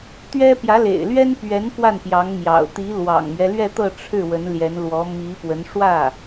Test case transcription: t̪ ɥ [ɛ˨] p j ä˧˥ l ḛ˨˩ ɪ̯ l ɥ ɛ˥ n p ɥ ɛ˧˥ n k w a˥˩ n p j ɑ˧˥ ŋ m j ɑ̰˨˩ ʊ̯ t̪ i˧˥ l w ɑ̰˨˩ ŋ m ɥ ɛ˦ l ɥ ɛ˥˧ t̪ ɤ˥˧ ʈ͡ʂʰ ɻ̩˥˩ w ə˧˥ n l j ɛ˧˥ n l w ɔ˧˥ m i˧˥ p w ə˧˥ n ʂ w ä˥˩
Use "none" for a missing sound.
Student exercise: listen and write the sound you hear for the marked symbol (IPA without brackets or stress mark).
ɛ˥